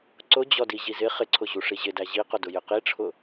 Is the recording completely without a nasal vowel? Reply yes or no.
yes